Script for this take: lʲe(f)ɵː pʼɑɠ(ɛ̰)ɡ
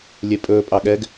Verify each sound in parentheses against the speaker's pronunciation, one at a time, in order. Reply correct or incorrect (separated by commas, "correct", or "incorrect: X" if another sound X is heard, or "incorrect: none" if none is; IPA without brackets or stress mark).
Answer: incorrect: pʼ, incorrect: ɛ